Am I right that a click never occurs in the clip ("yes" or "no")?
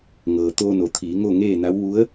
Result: yes